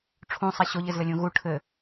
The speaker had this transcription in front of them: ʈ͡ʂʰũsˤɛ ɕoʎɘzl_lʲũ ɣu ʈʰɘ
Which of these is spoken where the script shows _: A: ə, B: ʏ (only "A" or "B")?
A